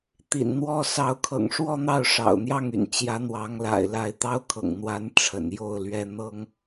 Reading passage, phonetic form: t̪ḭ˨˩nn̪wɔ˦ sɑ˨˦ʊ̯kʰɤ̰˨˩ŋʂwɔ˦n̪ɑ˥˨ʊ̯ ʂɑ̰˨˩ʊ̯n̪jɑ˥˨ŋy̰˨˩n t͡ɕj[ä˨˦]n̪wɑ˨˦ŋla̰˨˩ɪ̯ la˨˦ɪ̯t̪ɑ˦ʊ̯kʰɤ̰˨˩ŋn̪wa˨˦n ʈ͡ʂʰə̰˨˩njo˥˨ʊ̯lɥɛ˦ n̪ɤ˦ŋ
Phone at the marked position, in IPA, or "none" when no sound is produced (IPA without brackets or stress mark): ä˨˦